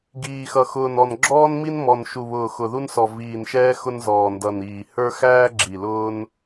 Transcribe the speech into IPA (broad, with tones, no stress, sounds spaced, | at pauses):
ɡ iː˨˩ x ʌ˨˩ x ʊː˨˩ n ɔ˨˩ n ɡ͡ǁ ɔː˧ n m i˧ n m ɔ˨˩ n ʃ u˨˩ β ʊː˨˩ x ʊ˨˩ ð u˧ n s ɔ˨˩ v iː˨˩ n ʃ ɛː˧ x ʊ˧ n z ɔː˨˩ n d ʌ˨˩ n iː˨˩ h ə˞˧ x æː˧ ɡ͡ǁ i˨˩ l ʊː˧ n